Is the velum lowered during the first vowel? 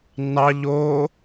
no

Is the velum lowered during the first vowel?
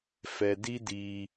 no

